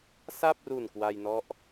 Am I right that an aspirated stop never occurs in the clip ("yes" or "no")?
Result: yes